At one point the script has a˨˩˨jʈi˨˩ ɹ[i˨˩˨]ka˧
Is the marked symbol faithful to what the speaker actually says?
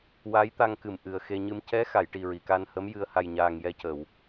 yes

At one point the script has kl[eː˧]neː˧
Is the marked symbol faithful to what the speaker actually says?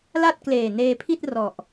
no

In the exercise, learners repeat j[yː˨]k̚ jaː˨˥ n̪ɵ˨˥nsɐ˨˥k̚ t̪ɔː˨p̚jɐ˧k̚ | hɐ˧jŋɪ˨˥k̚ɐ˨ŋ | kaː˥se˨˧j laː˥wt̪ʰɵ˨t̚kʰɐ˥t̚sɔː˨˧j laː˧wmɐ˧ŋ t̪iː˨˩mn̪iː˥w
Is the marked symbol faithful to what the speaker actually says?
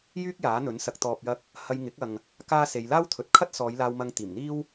no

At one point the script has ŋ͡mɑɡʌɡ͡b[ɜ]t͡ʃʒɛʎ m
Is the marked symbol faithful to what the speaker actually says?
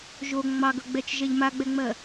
no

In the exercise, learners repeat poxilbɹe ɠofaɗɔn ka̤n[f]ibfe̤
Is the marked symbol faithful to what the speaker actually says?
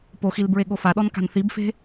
no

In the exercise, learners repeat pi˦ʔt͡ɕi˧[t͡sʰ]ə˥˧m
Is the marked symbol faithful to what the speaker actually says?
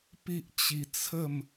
yes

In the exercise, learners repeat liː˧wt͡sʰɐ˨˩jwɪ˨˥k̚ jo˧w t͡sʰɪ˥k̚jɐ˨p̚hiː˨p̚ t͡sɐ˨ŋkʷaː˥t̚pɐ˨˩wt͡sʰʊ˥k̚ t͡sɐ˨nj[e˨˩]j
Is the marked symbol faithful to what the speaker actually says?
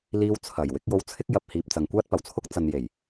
yes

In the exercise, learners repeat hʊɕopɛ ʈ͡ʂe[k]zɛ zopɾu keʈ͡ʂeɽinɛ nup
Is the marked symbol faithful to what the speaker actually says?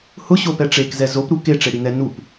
yes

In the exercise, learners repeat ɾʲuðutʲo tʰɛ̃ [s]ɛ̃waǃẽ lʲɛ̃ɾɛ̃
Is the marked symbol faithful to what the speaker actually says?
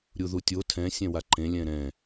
no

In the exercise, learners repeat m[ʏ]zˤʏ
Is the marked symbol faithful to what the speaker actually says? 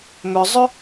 yes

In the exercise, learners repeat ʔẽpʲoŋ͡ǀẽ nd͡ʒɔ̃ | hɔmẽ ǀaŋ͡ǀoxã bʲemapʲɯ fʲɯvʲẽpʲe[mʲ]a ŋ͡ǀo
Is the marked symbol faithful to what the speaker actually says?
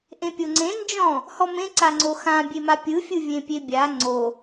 no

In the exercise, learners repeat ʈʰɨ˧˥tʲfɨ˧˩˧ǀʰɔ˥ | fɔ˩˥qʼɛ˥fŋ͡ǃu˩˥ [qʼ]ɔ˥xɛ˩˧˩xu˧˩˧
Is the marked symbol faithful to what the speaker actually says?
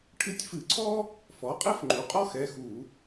yes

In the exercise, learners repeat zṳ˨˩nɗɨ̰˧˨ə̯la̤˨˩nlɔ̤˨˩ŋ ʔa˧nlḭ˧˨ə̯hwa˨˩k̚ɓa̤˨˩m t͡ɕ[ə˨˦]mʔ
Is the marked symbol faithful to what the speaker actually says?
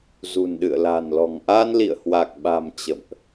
no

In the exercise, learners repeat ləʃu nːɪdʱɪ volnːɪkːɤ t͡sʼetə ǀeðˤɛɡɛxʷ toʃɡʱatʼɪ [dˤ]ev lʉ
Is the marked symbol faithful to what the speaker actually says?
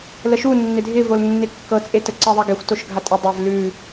yes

